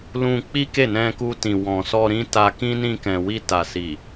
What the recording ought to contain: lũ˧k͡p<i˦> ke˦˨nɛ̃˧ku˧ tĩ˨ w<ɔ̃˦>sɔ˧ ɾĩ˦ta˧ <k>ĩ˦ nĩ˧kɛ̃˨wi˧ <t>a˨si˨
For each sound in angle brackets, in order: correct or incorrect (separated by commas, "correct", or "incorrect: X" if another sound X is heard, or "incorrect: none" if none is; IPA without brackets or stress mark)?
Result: correct, incorrect: ɔ̃˨, correct, correct